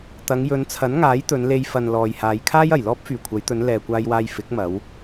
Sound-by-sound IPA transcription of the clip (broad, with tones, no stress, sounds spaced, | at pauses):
t̪ ɐ˨˧ ŋ j ɵ˨˧ n t͡sʰ ɐ˨˥ n ŋ aː˨˥ j t̪ ɵ˨˧ n l e˧ j f ɐ˨ n l ɔː˨ j h aː˨˧ j kʰ aː˥ j ɐ˨˩ j l ɔː˥ p̚ f yː˨˩ kʷʰ ɐ˨˧ j t̪ ɵ˨˧ n l ɛː˨ kʷ aː˧ j w aː˧ j f ɪ˨˥ k̚ m ɐ˨˧ w